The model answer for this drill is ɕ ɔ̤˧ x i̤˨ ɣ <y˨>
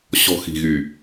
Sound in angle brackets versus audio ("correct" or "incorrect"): correct